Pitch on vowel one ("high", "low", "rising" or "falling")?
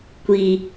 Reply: low